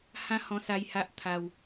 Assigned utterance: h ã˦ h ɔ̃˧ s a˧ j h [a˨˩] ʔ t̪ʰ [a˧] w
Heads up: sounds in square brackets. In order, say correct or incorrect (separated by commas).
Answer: incorrect, correct